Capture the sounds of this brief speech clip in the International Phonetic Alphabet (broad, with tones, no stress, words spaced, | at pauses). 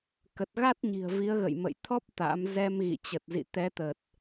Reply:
kə˨˩t̚ɣa˦˥t̚ɲi̤˨˩ə̯ vi˨˦ə̯ɣə̰˧˨jmə̰˧˨j t̪ʰɔ˦˥p̚ t̪a̰˧˥m zɛ˧m ɣḭ˧˨t͡ɕə˨˩t̚zḭ˧˨ t̪ɛ˨˦t̪ə˨˩t̚